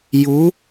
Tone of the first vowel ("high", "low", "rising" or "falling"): rising